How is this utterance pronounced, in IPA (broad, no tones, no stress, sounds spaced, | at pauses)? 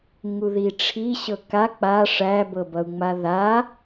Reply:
ŋ u ð i ʈ͡ʂʰ i ɕ ɤ k a k͡p a ʂ æ b ɤ b ʌ u̯ ŋ͡m a ð a